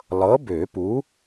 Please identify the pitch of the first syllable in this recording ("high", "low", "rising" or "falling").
rising